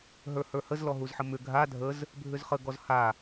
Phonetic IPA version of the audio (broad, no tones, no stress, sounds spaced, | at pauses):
ɦ ə˞ h ə˞ h ə z l ɔ ɦ u z ħ ə m ʏ ɡʱ a dʱ ə z | bʱ ʏ z χ ə ɡ ɔ z h a